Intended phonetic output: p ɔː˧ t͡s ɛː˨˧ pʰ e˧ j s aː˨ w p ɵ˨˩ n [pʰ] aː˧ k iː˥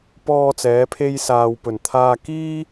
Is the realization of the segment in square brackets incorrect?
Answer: yes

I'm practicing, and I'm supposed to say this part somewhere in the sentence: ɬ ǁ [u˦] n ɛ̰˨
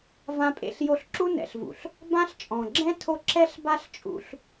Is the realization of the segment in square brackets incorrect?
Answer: no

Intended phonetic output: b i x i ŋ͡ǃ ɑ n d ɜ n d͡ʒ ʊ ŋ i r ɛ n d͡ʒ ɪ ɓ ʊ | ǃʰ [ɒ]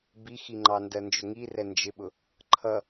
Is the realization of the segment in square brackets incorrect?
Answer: yes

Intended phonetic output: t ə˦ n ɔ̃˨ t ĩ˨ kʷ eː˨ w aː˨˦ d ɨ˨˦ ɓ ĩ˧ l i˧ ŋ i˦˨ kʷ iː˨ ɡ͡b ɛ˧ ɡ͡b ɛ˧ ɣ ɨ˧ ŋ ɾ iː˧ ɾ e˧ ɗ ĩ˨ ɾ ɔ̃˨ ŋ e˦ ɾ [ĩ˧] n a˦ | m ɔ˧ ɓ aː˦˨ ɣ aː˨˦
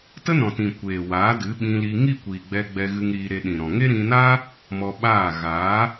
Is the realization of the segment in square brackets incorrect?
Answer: no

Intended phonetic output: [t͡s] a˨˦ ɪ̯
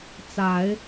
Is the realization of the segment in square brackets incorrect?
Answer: no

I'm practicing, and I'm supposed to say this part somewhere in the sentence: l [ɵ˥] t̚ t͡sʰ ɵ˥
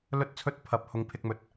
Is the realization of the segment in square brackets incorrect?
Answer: no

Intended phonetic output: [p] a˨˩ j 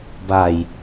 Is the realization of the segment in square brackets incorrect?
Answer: yes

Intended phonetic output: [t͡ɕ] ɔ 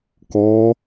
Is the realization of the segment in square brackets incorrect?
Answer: yes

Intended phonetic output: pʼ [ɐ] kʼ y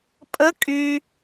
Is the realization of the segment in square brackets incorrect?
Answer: yes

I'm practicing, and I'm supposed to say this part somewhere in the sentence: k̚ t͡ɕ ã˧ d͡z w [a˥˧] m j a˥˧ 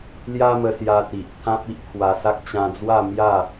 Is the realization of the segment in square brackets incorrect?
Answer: no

